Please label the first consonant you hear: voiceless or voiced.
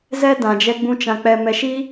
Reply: voiced